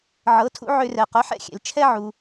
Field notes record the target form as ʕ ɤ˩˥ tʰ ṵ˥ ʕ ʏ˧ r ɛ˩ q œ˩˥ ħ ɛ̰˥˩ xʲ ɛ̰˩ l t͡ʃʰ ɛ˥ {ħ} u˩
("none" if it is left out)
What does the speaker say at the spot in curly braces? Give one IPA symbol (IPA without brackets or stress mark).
ʕ